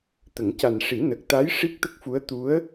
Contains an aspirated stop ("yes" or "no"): no